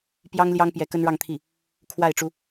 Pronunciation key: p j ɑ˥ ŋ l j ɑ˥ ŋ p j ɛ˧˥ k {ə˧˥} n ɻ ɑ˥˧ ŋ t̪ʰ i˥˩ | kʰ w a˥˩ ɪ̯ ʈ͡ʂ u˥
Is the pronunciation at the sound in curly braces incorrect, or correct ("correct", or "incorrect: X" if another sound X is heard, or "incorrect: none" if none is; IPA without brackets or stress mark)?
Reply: incorrect: ə˥